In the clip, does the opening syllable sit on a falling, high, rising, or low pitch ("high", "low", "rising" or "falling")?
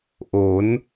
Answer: rising